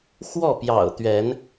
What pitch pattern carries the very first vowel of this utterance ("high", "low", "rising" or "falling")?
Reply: falling